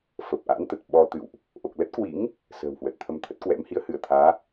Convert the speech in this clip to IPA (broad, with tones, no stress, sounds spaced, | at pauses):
f ə˨˩ p̚ ʔ a̰˧˥ n t̪ ə˨˩ t̚ ɓ ɔ˧ t̪ ɨ̰˧˨ w ʔ | ʔ o˨˩ k̚ l ə˦˥ t̚ k w ḭ˧˥ ŋ | s ə̤ː˨˩ w h w ə˨˩ t̚ t̪ʰ ə˧ m t̪ʰ ə˦˥ t̚ k w ɛ̰˧˥ m h i˨˦ ə̯ h ɨ˧˩ ə̯ t̪ʰ aː˨˦